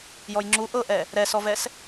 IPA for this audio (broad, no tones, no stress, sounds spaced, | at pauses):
j ɔ j ŋ͡ǁ u ʔ ɤ ʔ ɛ | ɾ ɛ s ɔ v ɛ s